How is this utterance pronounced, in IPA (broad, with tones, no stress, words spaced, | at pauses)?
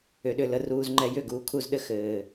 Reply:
ʏ˨ɗʏ˦˨lə˧ ruː˨zŋ͡ǃɛ˧ jʏ˦˨ɡuː˨kʰu˦˨zɗɘ˦ xɘː˨